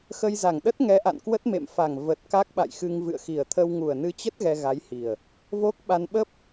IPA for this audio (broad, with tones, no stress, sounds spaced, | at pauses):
x ə˧ j z a˨˩ ŋ ɗ ə˦˥ t̚ ŋ ɛ˨˦ ʔ a̰˧˨ n k w ə˦˥ t̚ m ḛ˧˨ m f a˨˩ ŋ v ə˨˩ t̚ k a˦˥ k̚ ɓ a̰˧˨ j x ɨ˧ ŋ v ɨ̰˧˨ ə̯ x i˨˩ ə̯ t̪ʰ ə˧ w ŋ u˨˩ ə̯ n ɨ˧ t͡ɕ ə˦˥ t̚ ɣ ɛ˧ ɣ a˨˦ j h i˨˩ ə̯ | v o˦˥ k̚ ɓ a˧ n ɓ ə˦˥ p̚